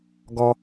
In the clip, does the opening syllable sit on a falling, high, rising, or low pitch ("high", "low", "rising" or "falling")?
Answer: low